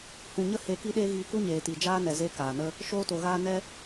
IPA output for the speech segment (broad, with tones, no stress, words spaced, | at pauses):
hũ˨ɲə˦ he˧ ki˦ɗeː˦ ɣiː˧ku˦ɲeː˨ti˨ d͡ʒaː˦nɛ˨ ze˦kaː˨ nə˧ | ʃoː˦to˨ɣaː˦ nɛ˦